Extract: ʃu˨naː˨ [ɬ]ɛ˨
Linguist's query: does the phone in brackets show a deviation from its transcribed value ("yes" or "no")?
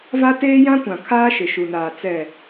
yes